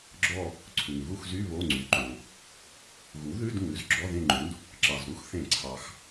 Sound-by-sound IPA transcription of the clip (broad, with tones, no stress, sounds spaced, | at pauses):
ɡ͡ǁ ɔ˦˨ | ǀʰ ʉ˩ ŋ ɣ u˦˨ x z y˧˥˧ β o˧˥˧ ŋ͡ǀ y˩˥ ǃ õ˩ | ɣ u˩˥ ð ʉ˧˥˧ d ŋ ʉ˩˥ z ɡ͡ǁ ɔ˧˥˧ ð ẽ˦˨ ŋ͡ǃ ũ˩˥ d | ǁ ɑ˩ z ɾ u˥ x θ ẽ˧˩˧ ǀʰ ɑ˩ x